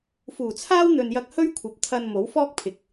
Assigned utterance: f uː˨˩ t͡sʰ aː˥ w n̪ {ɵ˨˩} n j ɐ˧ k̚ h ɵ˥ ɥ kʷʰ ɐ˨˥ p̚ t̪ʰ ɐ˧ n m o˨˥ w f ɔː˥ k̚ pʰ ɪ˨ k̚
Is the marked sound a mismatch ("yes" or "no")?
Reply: yes